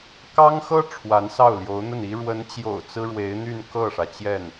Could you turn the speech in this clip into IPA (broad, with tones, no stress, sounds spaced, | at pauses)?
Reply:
k ɑ˥ ŋ x ɤ˥ ʈ͡ʂʰ w a˧˥ n s ɑ˥˩ ʊ̯ l j o˧˥ ʊ̯ n̪ ə˥˩ n i˥ ɻ w ə˧˥ n t͡ɕ j o̰˨˩ ʊ̯ t͡s ɹ̩˥ ɻ w e˧˥ ɪ̯ n̪ y˥˧ n k ɤ˥˩ ʂ ä˩ t͡ɕ j ɛ˥˩ n